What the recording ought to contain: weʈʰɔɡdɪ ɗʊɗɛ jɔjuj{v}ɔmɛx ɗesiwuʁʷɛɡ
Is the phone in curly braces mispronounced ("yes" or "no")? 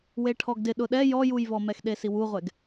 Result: no